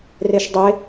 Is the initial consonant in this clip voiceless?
no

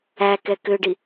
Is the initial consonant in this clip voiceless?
yes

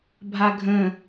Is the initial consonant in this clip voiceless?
no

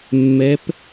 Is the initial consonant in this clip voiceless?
no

